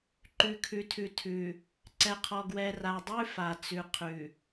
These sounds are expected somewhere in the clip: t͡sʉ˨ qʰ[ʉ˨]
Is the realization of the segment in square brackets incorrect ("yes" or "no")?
no